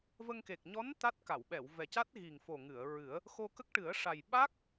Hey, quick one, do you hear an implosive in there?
yes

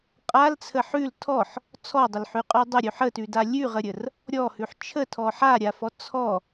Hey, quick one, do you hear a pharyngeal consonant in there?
yes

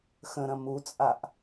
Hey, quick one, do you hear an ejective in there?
yes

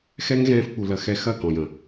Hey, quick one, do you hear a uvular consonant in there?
no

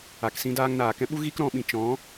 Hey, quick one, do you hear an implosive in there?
yes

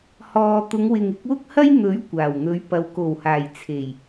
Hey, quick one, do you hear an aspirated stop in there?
yes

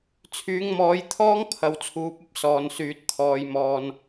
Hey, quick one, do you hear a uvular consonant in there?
no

